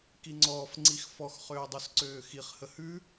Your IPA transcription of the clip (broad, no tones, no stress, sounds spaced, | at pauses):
k i ŋ͡ǀ ɔː f ŋ͡ǀ i x f ɔ x χ øː dˤ u s ǀ øː x i χ h ə h ʉ